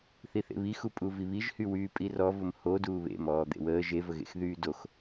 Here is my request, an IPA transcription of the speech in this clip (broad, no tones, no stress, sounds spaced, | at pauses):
θ i θ ḛ β i x u pʼ u v i β i ʒ h y w yː pʼ i r ɔ v ʊ m h o d uː β ḛ m ɔː d̪ ḛ w əː ʒ e v ə ɣ ḛ x ð yː d o x